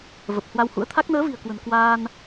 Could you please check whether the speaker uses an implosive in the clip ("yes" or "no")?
no